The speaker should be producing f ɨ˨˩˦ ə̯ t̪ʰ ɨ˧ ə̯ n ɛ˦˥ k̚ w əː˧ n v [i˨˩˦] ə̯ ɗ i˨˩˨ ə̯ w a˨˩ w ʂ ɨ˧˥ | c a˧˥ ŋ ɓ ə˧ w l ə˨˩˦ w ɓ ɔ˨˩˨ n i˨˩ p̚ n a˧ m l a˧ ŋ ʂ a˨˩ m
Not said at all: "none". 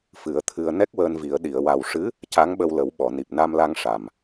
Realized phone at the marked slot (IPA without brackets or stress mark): i˨˩˦